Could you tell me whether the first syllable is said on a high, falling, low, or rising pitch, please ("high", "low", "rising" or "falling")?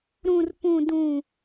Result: high